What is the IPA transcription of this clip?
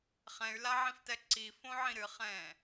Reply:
χ ɛ̃ y̯ l a ʕ ĩ f t ɛ ǀ i f õ ʕ ĩ ɾ ɨ χ ɛ̃ː

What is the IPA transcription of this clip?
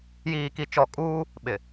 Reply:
j iː˨ k i˨ t͡ʃ ɔ˨ kʼ uː˦ | ɓ ɪ˨

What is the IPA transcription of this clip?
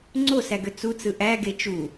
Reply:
ŋ͡ǀ o s æ ɡ ø t͡s u t͡s ɯ ʔ æ ɡ e t͡ʃ u

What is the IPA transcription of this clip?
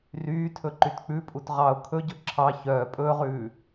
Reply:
r yː tʰ ɵ ǃ y t k͡p ʉ pʼ u t ʁ ɑ ʊ̯ kʰ ɵ ɟ ɵ ǁʰ ɑ ç œː pʼ ɵː ʁ ʉː

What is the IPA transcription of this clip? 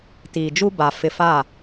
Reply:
t iː˨ d͡ʒ u˦ b a˨ f ɪ˨ f a˦˨

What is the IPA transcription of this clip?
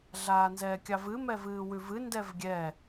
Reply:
ɮ aː n z ɛː kʲ ɑ v ɨ m ɛ v ɨː w ʉ v ɨ n d ɛ v ɡʲ ɛ

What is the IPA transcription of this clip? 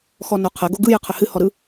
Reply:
x ɔ n o qʰ ə ɡ o ɡ ɯ j ɨ qʰ ə h ɨ h ɔ ɾ ɯ

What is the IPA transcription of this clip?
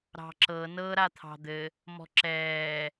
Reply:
ɾ ɑ̤ ǁ ɤ n ɤ ɾ a t̪ʰ ɑ̤ d̪ ɘ | m ɔ̤ ǁ ɛː

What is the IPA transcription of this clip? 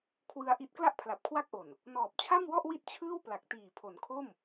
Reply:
kʰ w ɯ˧ a̯ ʔ i˦˥ t̚ k l a˥˩ ʔ pʰ l a˨˩ p̚ kʰ w a˥˩ k̚ ʔ o˨˩ n | n ɔː˨˩ p̚ t͡ɕʰ a˥˩ m w ɔ˥˩ ʔ w i˥˩ t̚ t͡ɕʰ ɯː˥˩ w p l a˨˩ k̚ t iː˨˩ pʰ o˩˦ n kʰ o˥˩ m

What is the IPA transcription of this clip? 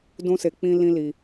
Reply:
d ũ˦ s e˧ k͡p ĩ˦ l ĩ˦ l i˧

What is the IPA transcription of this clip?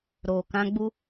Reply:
ɾ oː˨ k ã˦ ɡ͡b u˦

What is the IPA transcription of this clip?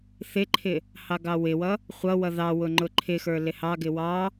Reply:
θ ɪ ǃʰ ɪ | h ɑ ɡ ɑ w ɪ w ʌ | χʷ ʌ w ʌ ð ɑ w ʊ ŋ͡ǃ ʊ ǃʰ ɪ x ə˞ l ɪ h ɑ ɡ ɪ w ɑ

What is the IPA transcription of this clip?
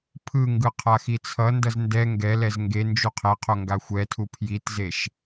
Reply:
pʰ ɯ ŋ ɡ ɯ qʰ a x i t͡sʰ ʌ n d ʌ z n d ɛ ŋ ɡ ɛ l ɛ z ŋ ɡ e n d͡ʒ u qʰ e qʰ o ŋ ɡ a xʷ ɛ tʰ u pʰ j i t z e ʃ

